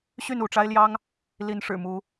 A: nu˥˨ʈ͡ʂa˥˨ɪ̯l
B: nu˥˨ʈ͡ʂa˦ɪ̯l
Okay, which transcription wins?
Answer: B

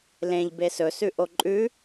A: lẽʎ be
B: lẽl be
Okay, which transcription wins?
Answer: A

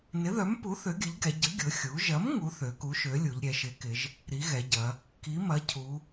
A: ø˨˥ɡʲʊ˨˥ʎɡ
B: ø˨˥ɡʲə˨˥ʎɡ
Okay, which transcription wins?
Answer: B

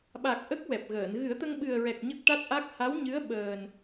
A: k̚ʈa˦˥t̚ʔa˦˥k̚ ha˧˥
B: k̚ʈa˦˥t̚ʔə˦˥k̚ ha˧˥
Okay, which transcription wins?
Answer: A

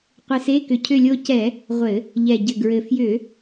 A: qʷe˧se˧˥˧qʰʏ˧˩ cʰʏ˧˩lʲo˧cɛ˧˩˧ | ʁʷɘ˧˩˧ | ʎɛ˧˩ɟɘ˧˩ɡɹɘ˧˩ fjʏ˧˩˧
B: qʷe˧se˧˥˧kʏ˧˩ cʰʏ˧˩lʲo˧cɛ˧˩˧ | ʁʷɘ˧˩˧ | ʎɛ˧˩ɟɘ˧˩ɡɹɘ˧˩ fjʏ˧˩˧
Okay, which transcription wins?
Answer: B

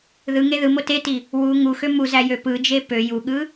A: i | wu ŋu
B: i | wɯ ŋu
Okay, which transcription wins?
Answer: A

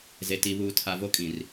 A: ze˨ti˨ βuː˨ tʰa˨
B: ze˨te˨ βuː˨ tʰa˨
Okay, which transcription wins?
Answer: A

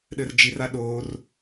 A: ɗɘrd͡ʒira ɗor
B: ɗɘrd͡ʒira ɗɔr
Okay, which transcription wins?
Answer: A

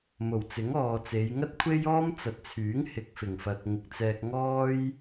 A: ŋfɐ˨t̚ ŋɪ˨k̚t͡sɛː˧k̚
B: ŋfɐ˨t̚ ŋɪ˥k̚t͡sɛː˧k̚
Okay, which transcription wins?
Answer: A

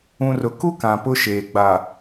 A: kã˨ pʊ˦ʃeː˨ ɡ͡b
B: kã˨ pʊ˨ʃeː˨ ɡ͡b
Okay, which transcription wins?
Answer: A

